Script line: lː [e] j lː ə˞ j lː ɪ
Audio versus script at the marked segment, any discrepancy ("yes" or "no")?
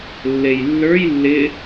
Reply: no